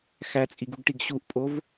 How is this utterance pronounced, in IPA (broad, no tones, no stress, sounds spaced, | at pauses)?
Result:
x æ t͡sʼ i ɡ u ɡ ʈ i ɡ ɕ u ʔ pʼ o v